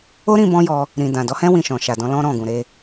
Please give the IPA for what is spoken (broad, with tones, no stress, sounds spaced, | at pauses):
o˦ ɾ ĩ˧ b ɔ̃˦ j ɔ˧ | ɾ ĩ˨ d ã˨ d ɔ˨˦ h ɛ̃˦ w ĩ˦˨ ʃ ɔ̃˨ ʃ a˨ d ɔ̃˨˦ l ɔ̃˦ ɾ ɔ̃˦˨ ɡ ũ˨ ɾ e˧